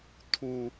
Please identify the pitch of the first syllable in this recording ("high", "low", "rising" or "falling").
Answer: low